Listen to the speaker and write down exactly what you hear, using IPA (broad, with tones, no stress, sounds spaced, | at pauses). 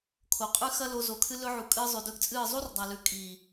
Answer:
kʰ o˨ qʼ ʉ˦ x ɐ˦ l o˧ z o˨ kʰ ɨ˧ l ɵ˧ ʕ u˨ kʼ ɨː˧ zˤ ʉ˨ d ɵ˧ ɡ t͡sʼ ɨː˦˨ zˤ u˦ r dˤ a˨ l ʉ˨ kʼ i˨